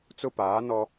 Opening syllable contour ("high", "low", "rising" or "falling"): high